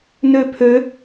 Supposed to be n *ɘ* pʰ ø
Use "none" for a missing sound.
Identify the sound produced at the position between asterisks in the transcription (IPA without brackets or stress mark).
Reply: ø